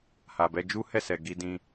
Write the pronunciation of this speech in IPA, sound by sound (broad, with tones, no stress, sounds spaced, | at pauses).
h a˨ b ɛ˧ d͡ʒ u˦ h ɛ˦˨ s ɛ˨ ɡ i˧ d ĩ˧